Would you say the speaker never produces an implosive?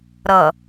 yes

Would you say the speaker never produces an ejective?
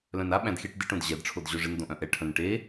yes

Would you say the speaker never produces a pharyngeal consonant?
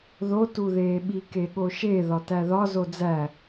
yes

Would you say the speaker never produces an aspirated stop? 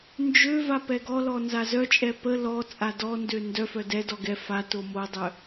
yes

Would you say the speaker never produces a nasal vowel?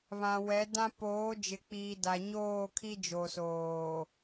no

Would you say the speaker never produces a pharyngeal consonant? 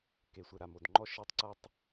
yes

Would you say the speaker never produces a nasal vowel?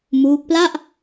yes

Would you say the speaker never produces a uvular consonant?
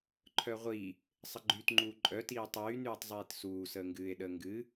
no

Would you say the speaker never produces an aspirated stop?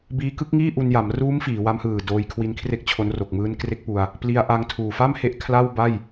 no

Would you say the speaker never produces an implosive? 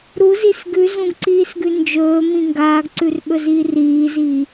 no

